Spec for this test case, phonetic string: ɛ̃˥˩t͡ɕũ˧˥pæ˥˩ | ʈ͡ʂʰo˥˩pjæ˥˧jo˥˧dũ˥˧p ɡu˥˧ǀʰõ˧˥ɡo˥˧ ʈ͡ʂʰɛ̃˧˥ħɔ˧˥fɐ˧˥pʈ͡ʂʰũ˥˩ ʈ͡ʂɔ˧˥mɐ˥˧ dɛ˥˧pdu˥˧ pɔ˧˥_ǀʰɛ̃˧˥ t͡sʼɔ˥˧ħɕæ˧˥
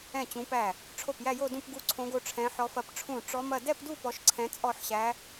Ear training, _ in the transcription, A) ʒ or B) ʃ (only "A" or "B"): B